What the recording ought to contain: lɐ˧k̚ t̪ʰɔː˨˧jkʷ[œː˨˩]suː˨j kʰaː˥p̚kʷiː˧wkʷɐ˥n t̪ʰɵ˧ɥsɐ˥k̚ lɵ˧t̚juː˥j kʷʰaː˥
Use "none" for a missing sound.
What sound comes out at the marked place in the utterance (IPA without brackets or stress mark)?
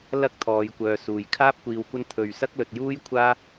œː˨